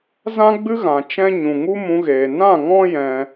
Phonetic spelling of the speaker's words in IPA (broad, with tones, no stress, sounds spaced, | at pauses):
z ã˦ ɡ͡b ɨ˦ ɣ ã˨ t͡ʃ ɛ̃˦ ɲ ũ˨ ŋ u˦ m ũ˧ ɣ eː˨ n ã˦˨ ŋ ɔ̃˦ j ɛ̃˧